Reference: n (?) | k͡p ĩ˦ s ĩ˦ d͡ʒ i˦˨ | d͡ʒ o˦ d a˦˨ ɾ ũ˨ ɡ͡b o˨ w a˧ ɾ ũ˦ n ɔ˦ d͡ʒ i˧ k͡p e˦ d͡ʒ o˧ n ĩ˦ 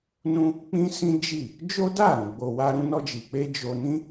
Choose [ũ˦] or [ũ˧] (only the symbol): ũ˦